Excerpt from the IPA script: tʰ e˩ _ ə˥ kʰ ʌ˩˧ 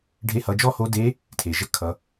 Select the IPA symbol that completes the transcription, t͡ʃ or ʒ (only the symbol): ʒ